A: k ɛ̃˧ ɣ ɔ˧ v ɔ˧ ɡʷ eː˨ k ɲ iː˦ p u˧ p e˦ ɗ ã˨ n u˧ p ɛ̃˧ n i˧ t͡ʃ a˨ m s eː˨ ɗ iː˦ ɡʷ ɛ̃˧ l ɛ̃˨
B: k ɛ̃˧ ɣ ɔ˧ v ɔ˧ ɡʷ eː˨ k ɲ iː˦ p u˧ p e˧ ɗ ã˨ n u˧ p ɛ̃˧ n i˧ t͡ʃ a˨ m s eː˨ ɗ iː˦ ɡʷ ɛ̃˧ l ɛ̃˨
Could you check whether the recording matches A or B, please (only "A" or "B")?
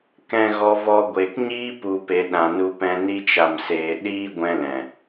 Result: B